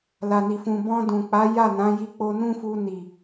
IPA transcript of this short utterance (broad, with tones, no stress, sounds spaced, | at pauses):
l a˨ n i˨ f ũ˨ b ɔ̃˧ d ũ˨ k͡p a˨˦ j a˦˨ n ã˨˦ j i˧ k͡p o˧ n ũ˦ f u˧ n i˨